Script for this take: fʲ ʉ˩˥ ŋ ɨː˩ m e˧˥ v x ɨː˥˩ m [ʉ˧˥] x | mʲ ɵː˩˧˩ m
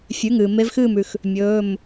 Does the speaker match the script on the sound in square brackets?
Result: no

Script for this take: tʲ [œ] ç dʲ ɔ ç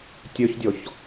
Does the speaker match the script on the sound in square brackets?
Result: yes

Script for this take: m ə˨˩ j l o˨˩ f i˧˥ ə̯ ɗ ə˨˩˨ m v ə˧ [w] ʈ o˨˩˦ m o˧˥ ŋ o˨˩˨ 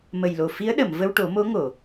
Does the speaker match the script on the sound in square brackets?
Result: yes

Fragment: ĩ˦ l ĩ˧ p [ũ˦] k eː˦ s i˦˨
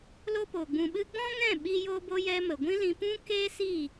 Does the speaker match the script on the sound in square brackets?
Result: yes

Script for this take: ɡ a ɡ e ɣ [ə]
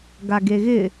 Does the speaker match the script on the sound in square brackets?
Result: no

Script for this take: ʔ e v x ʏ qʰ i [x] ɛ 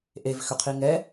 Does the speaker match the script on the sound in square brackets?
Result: no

